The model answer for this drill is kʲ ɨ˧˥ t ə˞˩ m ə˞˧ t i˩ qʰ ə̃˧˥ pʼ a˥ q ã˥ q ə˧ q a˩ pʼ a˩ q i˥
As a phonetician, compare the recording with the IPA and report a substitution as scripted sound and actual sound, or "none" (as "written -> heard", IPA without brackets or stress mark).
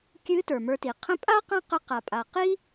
none